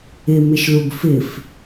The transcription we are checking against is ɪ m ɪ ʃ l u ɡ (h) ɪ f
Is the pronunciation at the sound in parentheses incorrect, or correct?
incorrect